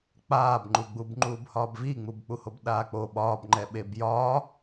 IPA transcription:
k͡p aː b ŋ͡ǃ u ɡ͡b u b ŋ͡ǃ uː b h ɒː b v i ŋ͡m u b k͡p u h o b ɗ aː k͡p o ɓ ɒː b ŋ͡ǃ ɛ ɓ e b j ɒː

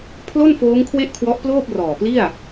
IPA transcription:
pʰ l o˥˩ n f oː˦˥ ŋ kʰ w e˥˩ ʔ kʰ w ɔ˦˥ ʔ p l oː˥˩ p̚ r ɔː˨˩ p l i˥˩ a̯

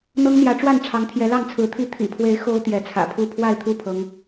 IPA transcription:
n̪ ɤ˦ ŋ n̪ j ä˨˦ ʈ͡ʂ w a˥˨ n ʈ͡ʂʰ ɑ˨˦ ŋ t̪ʰ j ɛ˨˦ l ɑ˥˨ ŋ t͡sʰ ɹ̩˨˦ t̪ʰ i˦ t̪ʰ ḭ˨˩ pʰ w e˨˦ ɪ̯ x o˦ ʊ̯ t̪ j ɛ˨˦ t͡sʰ ä̰˨˩ pʰ u˥˨ pʰ w a˥˨ ɪ̯ t̪ʰ u˥˨ pʰ ɤ˨˦ ŋ

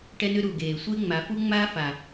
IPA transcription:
ʈ ɛ˦ n ʏ˦ ɾ u˨ ɡ eː˨ sʷ e˦ ŋ͡m a˨˦ f u˦ ŋ͡m aː˦ f a˨

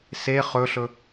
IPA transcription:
s e χ ɵ ɬ ɵ

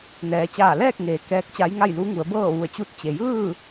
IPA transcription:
n ɛː˩˧ t͡ɕ aː˧˩ l ɛː˥˨ k̚ ŋ eː˩ k ɛː˧˥ k̚ t͡ɕ a˧˥ j ŋ a˥˨ j l u˧˥ ŋ u˩˧ ə̯ b ɤː˥˨ ʋ u˧˩ ə̯ t͡ɕ u˧ t̚ t͡ɕ e˩ j ɯː˥˨

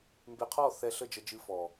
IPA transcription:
m b e˧ qʰ ɔ˦˨ θ ɛ˧ ɬ ə˦˨ d͡ʒ ə˧ d͡ʒ ɨ˧ f ɔ˨

